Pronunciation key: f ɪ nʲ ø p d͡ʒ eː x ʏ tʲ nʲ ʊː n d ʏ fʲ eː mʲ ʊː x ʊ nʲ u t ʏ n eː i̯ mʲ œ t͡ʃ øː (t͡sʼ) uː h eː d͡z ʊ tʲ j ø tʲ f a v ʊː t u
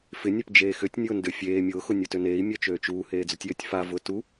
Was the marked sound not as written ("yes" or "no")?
yes